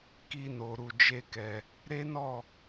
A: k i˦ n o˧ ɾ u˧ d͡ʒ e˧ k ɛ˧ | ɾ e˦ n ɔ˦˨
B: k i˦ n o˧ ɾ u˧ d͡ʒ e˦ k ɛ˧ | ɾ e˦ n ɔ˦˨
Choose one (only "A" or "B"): B